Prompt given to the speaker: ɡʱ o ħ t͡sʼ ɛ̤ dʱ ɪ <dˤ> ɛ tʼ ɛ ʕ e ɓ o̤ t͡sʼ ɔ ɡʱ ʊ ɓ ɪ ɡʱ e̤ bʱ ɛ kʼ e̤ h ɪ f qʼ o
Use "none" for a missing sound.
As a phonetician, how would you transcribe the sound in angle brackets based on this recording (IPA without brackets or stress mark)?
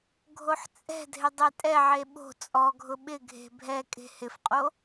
dˤ